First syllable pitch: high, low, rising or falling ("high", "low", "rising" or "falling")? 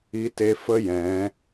rising